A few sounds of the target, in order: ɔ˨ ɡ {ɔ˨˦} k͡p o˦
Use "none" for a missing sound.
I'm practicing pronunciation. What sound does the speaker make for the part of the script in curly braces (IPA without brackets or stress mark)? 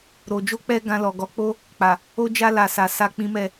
ɔ˨˦